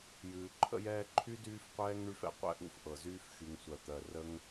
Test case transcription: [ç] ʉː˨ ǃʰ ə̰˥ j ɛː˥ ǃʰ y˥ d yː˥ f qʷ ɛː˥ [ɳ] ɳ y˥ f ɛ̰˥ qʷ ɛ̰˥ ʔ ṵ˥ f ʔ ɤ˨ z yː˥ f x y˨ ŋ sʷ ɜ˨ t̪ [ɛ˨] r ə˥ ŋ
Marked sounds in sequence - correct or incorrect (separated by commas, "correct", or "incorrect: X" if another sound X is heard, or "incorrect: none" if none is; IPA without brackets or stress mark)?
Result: incorrect: j, incorrect: ŋ, incorrect: ɜ˨